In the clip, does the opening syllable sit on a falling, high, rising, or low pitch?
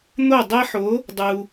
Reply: falling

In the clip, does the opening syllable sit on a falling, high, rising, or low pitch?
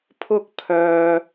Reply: high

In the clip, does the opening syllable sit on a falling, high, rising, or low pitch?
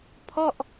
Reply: falling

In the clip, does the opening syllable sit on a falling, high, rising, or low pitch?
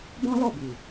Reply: high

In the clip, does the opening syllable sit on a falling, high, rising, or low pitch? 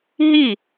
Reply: falling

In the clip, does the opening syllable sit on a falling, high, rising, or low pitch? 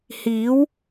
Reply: rising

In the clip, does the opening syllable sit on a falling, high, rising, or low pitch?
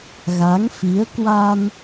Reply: rising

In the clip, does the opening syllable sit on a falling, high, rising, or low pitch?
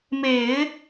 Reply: low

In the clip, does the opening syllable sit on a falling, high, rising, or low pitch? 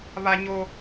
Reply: high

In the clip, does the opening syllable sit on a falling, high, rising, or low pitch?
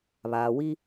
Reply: low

